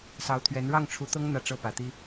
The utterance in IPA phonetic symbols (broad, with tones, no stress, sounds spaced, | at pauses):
s ɑ˧˥ ʊ̯ t̪ʰ ɥ ɛ˧˥ n ɻ ɑ˥˩ ŋ ʈ͡ʂʰ u˧˥ t̪ ɤ˥ ŋ n̪ ä˥˧ ʈ͡ʂ ɤ˥˩ p ä˨˩ t̪ i˥